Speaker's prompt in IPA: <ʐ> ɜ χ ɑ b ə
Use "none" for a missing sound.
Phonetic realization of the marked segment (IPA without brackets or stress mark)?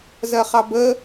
z